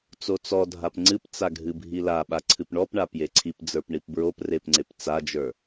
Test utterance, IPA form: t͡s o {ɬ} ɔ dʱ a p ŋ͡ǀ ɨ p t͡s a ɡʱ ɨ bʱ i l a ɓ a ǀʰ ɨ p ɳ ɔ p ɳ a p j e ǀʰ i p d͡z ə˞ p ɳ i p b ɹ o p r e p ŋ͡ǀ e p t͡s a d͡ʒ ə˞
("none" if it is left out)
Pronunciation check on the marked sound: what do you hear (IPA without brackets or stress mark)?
t͡s